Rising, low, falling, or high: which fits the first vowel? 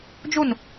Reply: falling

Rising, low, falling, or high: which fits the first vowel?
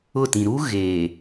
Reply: falling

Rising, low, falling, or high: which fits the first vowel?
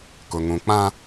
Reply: low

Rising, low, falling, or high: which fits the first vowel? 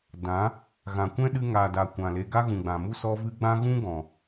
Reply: rising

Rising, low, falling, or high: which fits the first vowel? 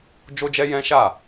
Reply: high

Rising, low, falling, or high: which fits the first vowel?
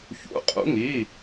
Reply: rising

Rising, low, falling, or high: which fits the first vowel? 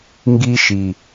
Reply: high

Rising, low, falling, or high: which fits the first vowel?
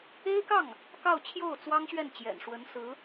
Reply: high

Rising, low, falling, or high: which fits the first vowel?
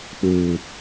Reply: low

